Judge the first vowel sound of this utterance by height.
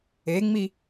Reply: mid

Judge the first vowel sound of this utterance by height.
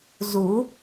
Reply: high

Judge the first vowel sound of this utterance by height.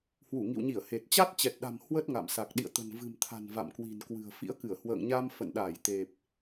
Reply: high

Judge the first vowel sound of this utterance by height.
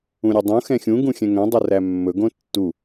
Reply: high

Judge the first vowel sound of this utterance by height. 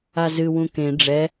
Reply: low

